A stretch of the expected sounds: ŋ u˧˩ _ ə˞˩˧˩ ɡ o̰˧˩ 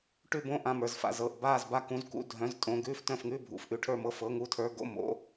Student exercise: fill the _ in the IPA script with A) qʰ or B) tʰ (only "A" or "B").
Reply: B